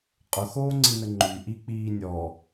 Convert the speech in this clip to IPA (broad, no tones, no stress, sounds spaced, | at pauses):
qʼ ʊ x oː ŋ͡ǀ i n ə ŋ͡ǃ y ʔ i k͡p iː nʲ ɔ